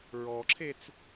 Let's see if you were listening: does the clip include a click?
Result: yes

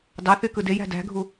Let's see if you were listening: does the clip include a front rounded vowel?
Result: yes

